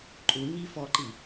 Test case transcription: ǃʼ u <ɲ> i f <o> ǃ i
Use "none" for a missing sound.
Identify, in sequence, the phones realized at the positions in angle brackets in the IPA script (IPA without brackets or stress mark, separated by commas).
ɲ, ɔ